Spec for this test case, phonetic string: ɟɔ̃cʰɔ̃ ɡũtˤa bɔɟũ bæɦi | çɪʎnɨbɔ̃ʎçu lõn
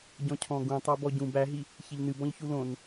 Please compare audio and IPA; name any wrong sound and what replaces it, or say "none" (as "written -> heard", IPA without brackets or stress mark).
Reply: none